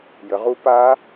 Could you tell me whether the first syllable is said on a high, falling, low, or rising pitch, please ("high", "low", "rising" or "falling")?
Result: rising